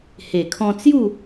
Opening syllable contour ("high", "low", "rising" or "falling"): low